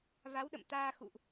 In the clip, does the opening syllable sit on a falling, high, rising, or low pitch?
rising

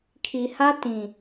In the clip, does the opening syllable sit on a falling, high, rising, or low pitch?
low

